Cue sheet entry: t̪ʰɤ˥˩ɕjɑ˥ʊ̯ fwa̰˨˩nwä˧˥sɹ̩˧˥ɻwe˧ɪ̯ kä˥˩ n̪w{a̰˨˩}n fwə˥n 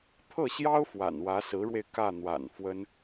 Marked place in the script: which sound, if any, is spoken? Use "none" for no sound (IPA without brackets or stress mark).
a̰˨˩